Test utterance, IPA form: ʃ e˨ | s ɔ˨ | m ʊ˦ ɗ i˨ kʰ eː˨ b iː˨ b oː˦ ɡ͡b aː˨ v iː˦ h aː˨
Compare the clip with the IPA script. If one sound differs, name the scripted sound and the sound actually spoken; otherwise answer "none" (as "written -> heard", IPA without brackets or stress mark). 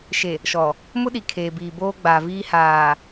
s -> ʃ